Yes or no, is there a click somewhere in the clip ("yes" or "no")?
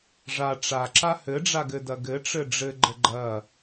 yes